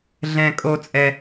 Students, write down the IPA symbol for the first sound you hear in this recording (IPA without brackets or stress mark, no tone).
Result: ɮ